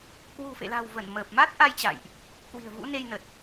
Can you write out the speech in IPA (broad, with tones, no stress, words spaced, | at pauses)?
kwṳ˨˩fḛ˧˨la̤˨˩wvə˧˩n məː˨˩p̚ma˦˥t̚ʔa˧jt͡ɕa̰˧˨jʔ | kwi̤˨˩ə̯vṵ˧˥ne˧jnə˨˩t̚